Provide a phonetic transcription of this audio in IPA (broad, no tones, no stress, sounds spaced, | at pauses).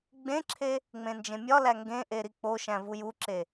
ɡ͡b ẽ ǁʰ e | ŋ͡m ẽ n d͡ʒ ẽ mʲ ɒ l æ ŋ ɡ ẽ ʔ e ɾ i k͡p o ʃ æ̃ v u j u ǁ e